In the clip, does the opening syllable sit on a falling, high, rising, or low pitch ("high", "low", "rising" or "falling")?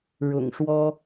low